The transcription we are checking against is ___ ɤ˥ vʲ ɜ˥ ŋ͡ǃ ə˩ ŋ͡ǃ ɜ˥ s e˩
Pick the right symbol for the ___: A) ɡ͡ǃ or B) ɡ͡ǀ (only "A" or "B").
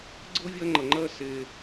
B